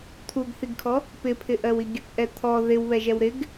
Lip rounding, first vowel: rounded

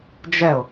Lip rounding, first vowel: unrounded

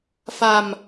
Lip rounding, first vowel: unrounded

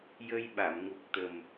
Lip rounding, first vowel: unrounded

